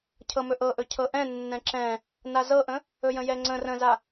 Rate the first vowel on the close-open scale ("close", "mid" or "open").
mid